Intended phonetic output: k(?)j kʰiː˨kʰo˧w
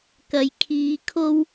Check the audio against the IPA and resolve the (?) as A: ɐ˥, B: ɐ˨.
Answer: B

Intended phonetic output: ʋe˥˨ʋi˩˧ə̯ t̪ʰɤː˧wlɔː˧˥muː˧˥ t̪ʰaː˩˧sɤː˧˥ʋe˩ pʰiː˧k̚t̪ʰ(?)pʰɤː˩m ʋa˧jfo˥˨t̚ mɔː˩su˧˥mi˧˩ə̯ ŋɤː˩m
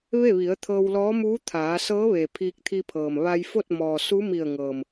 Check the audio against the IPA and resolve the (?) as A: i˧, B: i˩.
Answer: A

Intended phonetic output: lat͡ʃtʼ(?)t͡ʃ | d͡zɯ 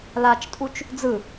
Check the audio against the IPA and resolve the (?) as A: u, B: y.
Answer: A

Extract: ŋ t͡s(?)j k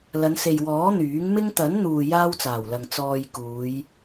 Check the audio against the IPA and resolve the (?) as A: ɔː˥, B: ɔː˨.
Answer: B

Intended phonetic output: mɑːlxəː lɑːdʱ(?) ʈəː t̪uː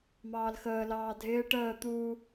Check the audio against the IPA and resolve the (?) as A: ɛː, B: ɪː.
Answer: B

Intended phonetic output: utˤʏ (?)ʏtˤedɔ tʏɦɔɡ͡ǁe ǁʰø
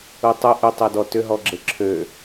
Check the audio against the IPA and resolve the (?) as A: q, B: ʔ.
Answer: B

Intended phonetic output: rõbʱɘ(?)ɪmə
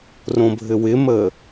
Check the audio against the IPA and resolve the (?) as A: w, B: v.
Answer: A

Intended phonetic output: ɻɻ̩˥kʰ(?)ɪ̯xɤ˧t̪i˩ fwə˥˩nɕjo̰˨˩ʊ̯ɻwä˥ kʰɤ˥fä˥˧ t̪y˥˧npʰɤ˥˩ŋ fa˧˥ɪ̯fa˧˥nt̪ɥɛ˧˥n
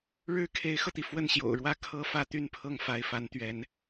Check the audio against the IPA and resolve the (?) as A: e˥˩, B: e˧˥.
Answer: B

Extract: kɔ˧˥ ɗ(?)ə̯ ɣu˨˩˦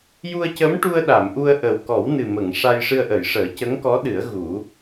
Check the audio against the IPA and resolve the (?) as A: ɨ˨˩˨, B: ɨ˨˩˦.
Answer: B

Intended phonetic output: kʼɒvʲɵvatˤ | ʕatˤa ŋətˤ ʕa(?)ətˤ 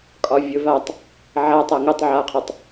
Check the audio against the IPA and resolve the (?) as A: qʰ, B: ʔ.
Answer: A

